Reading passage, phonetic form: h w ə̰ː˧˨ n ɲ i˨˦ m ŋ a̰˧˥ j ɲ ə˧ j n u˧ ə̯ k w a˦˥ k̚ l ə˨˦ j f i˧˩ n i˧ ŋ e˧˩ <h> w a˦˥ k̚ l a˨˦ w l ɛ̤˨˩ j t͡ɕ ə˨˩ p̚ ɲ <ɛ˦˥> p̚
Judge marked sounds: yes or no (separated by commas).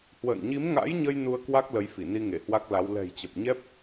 yes, yes